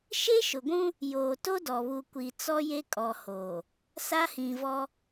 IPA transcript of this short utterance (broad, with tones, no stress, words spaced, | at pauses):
ʃe˦ʃʊ˨ɡʷũ˦ | joː˨to˦dɔ˨βu˨ kʷi˨ t͡sɔ˦je˦kʼɔ˨hoː˨ | sa˦hĩ˨vɔ˦